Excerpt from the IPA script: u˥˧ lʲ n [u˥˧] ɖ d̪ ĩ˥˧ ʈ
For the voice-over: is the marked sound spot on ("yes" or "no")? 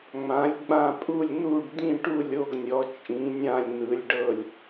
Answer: yes